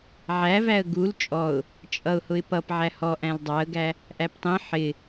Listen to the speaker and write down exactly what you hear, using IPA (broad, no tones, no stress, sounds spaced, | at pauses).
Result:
ʕ æ v æ ə̯ ɡ u l t͡ʃʼ ɔ ʊ̯ | t͡ʃʼ ʌ ʊ̯ h ʊ ɪ̯ p ʌ p ʕ æ h ɔ ʔ æ̃ l dˤ ɑ ə̯ ɡ æ | ʔ æ p tˤ ĩ ħ ɪ